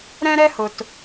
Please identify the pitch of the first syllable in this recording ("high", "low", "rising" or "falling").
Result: high